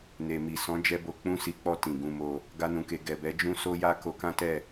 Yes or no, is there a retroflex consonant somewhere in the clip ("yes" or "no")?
no